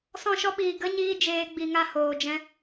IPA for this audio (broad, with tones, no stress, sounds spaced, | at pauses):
s ɔ̃˦˨ ʃ ɔ˦ ɓ iː˨ ɡ ə˦ ɲ iː˦ d͡ʒ eː˧ ɡ͡b i˨ ŋ a˦˨ h oː˨ d͡ʒ ɛ̃˧